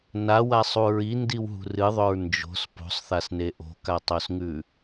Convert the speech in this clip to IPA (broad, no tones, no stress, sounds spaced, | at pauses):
n a w a sˤ u ɹ i n d i w ɦ ṳ r ɨ ðˤ ɵ ɹ n d͡ʒ o̤ s p o̤ sˤ θ a s n e ʔ o̤ k a tˤ o s ŋ ʉ